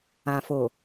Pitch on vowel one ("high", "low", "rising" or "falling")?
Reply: low